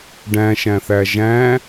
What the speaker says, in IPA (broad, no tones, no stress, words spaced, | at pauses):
ɖæ̃ʃæ̃θæ ʒæ̃